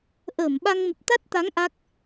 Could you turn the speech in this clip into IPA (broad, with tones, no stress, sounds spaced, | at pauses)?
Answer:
ʔ əː˧˩ m ɓ a˧ ŋ m ə˨˩ p̚ t̪ a˦˥ t̚ t̪ a˨˦ ŋ ʔ a˦˥ k̚